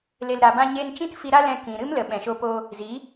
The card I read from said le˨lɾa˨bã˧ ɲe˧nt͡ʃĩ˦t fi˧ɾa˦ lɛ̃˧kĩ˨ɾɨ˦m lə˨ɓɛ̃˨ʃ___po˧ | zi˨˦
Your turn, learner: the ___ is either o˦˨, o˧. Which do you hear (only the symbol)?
o˧